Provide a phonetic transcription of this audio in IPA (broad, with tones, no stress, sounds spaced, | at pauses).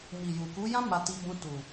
m i˨ j u˨ k u˨˦ j ã˦ m a˧ t i˧ b ũ˧ t u˨